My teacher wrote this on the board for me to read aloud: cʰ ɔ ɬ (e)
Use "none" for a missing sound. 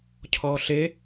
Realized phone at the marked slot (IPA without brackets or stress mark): e